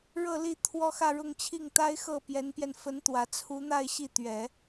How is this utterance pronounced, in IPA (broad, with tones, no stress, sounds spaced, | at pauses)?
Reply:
ɻ ɤ˥˧ l i˥˩ t̪ʰ w ɔ˥ x ä˥˧ ɻ ʊ˥˧ ŋ t͡ɕʰ i˥˩ ŋ t̪ a˥ ɪ̯ x ɤ˥˩ p j ɛ˧˥ n p j ɛ˧ n f ə˧˥ n t̪ w ä˨˩ t͡sʰ u˧˥ n̪ a˥˧ ɪ̯ ɕ i˥˩ t̪ ɥ ɛ˨˩˦